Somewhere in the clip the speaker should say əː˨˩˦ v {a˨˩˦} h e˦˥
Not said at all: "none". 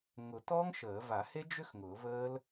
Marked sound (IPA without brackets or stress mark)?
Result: a˨˩˦